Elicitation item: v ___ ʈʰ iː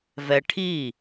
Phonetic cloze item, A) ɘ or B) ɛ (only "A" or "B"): B